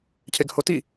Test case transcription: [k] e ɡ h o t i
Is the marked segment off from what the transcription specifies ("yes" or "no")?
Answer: yes